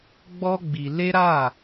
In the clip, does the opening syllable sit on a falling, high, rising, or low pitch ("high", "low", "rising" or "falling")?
high